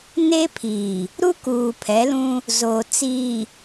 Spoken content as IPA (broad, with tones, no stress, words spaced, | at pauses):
ne˦pʰiː˨ | ɾu˦kuː˨ pʰɛ˨˦lũ˦ | zoː˨t͡siː˨